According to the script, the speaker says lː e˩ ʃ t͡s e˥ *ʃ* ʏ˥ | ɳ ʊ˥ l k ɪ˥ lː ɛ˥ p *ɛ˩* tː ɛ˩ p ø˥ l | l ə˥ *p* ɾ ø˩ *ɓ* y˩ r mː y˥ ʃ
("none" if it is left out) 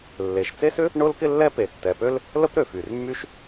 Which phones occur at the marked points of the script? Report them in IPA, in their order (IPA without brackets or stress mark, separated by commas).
s, e˩, p, f